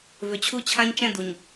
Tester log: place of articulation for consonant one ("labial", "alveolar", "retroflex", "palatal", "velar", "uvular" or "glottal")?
labial